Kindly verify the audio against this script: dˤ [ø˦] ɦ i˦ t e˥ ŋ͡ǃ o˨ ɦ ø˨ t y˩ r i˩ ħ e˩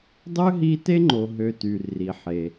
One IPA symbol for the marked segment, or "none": ø˥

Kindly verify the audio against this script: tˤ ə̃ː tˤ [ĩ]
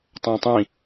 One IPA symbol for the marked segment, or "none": ĩ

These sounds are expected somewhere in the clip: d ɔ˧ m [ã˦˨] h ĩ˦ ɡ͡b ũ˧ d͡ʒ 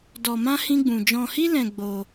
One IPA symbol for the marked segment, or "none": ã˦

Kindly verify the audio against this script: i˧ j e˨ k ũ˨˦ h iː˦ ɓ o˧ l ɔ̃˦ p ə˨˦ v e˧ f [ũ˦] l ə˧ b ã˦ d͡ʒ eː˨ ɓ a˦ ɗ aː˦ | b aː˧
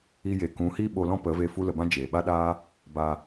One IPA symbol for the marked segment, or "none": u˦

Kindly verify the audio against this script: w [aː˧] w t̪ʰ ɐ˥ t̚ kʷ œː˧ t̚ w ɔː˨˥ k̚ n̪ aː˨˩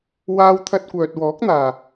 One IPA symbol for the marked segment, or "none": aː˥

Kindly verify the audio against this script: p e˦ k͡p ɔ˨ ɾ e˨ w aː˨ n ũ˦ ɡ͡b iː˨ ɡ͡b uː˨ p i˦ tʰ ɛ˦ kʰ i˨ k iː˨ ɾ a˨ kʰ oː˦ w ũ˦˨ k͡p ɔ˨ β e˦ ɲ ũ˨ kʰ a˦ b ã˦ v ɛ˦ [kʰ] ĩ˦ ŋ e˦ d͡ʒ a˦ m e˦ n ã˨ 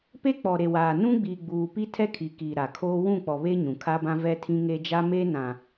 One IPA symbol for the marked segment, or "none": tʰ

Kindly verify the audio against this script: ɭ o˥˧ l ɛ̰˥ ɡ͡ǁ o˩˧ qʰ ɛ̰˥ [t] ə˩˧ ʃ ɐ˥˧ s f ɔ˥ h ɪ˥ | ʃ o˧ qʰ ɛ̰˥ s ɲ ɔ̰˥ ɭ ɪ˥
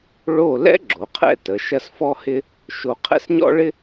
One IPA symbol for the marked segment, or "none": t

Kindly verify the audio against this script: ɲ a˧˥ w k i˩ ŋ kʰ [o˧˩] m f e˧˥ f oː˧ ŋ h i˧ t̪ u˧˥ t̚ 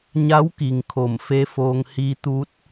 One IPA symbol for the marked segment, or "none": o˧˩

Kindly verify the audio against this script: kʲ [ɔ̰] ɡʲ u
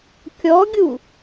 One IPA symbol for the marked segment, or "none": ɔ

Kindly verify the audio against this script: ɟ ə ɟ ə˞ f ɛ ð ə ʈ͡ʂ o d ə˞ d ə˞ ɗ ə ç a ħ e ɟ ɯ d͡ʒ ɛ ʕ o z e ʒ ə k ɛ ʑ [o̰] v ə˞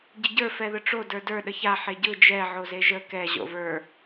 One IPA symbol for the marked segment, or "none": o̰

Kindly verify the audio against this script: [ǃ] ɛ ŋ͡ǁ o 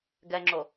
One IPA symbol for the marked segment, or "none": ɡ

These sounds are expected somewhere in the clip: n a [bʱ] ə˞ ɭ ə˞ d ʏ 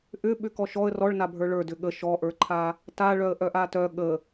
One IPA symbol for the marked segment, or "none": bʱ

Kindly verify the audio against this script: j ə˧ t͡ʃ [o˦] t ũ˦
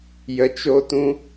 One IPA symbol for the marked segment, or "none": o˦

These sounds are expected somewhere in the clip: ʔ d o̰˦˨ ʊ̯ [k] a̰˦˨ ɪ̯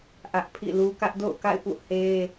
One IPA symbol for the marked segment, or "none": k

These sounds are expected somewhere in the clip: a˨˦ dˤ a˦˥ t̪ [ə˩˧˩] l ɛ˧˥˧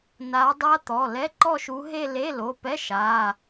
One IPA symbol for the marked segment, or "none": ɔ˩˧˩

